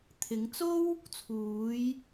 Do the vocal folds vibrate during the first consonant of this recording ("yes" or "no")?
no